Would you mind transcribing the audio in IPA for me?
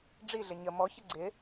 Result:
ɖ͡ʐ i ɮ ɪ ɲ ə m ɔ ç ɪ ɡ͡ǀ ɪ

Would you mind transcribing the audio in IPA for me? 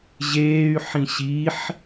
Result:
ʑ eː y̯ ħ ĩ ɕ i ħ

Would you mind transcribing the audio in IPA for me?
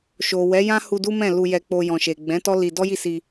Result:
ʃ o˨ w ɛ˨˦ j ã˦ h u˧ d u˦ m ɛ̃˦˨ l u˧ j ɛ˧ k͡p o˧ j ɔ̃˨ ʃ e˨ ɡ͡b ɛ̃˨˦ t ɔ˦ l i˧ d ɔ˦ j i˦˨ s i˧

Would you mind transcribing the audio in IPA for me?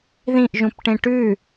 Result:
ð ĩ ʔ ʒ ũ p ʈ ẽ ʈ ʉ

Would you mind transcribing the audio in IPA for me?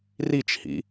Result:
r i t͡ʃ h ḭ

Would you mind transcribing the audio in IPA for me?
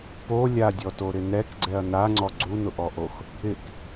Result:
p o lʲ a dʲ ɔ t o ɾ ɪ n ɛ k ɡ͡ǀ ɛ ɐ̯ n a ŋ͡ǀ ɔ ɡ͡ǀ u n ʊ ʔ ɔ ʔ o x | ɪ k

